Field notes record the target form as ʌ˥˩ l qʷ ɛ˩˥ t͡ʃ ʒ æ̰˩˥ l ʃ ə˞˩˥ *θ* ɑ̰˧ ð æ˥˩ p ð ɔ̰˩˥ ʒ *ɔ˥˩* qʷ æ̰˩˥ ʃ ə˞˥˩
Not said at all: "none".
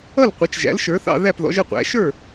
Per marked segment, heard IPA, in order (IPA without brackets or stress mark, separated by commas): θ, ə˥˩